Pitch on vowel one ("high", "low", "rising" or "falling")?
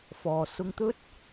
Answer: low